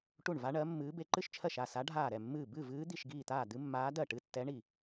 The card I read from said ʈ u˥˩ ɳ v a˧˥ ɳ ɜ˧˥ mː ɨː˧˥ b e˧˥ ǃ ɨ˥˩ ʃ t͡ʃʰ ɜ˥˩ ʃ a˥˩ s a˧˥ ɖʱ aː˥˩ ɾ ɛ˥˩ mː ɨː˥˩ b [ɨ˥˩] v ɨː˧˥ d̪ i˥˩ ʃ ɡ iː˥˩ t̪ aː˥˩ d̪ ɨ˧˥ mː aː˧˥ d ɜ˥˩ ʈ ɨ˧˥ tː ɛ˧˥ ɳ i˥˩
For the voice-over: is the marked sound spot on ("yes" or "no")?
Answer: yes